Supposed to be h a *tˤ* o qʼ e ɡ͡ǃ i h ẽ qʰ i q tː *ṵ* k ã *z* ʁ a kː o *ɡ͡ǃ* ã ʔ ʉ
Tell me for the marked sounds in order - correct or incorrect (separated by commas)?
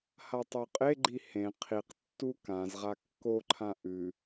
correct, incorrect, correct, incorrect